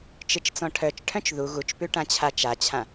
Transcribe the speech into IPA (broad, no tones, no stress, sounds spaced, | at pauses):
t͡ʃ ɨ t͡ʃ t͡s ɔ̃ ʈʰ œ t͡ʃ ʈʰ œ̃ t͡ʃ ð u ɣ u t͡ʃ p ʉ ʈ ã t͡ɕʰ a t͡ʃ a t͡ɕʰ ã